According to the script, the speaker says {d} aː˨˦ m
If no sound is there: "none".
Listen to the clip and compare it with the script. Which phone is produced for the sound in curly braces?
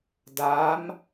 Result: d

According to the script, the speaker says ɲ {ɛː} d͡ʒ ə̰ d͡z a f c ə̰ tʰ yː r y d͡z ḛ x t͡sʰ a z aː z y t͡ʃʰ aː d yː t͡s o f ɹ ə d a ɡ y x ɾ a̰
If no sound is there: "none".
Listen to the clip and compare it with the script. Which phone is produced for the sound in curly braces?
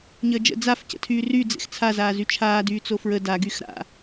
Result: əː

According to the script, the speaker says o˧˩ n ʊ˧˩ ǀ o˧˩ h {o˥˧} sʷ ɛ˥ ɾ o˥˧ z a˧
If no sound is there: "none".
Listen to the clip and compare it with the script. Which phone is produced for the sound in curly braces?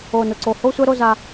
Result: o˥˧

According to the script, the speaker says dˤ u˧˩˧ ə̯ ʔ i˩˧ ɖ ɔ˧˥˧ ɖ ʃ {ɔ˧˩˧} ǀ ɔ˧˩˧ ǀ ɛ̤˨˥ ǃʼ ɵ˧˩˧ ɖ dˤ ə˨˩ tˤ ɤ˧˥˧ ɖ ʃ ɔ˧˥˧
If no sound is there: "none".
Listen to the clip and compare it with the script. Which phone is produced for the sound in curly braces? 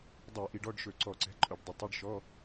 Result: ɵ˧˩˧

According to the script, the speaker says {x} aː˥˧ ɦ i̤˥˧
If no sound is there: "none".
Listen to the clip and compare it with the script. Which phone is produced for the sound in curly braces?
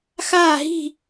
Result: x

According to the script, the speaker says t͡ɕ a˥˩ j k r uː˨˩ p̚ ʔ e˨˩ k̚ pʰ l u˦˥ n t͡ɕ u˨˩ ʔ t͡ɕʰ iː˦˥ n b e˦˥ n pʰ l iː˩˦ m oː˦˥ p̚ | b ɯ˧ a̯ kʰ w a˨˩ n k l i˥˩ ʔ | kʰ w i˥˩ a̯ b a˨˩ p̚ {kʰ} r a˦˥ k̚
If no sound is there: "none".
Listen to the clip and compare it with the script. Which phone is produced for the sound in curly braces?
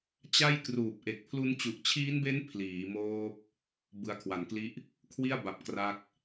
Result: k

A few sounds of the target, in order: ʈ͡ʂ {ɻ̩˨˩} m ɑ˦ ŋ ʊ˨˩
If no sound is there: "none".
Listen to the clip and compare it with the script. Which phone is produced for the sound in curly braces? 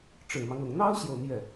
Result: ɻ̩˨˩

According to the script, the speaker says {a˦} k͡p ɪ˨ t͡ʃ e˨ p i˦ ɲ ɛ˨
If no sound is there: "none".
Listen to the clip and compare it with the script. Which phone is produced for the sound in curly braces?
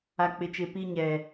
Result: a˨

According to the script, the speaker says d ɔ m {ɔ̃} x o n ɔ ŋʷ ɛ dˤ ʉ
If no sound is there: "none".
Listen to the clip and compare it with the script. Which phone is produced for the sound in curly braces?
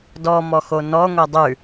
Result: ɔ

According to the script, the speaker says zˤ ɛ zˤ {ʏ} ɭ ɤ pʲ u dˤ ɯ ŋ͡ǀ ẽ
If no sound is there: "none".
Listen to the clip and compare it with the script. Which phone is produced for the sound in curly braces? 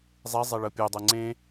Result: ɛ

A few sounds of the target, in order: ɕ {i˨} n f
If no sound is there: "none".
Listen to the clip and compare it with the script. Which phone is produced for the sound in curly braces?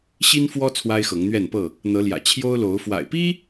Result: i˦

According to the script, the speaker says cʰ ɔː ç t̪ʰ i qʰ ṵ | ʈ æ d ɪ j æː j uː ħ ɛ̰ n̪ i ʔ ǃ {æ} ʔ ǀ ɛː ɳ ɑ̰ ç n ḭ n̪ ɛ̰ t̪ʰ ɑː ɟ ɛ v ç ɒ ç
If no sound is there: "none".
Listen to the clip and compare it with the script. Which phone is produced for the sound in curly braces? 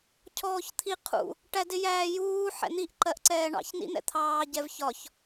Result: ɜ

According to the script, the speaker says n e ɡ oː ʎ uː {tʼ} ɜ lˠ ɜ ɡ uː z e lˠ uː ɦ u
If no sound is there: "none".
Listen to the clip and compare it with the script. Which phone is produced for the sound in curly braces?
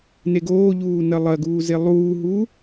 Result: n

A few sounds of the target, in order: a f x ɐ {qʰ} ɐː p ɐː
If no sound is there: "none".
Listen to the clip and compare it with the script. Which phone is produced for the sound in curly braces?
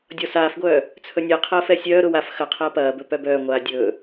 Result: qʰ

